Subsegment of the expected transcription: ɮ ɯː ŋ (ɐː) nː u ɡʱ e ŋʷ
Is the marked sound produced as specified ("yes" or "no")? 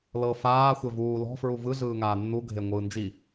no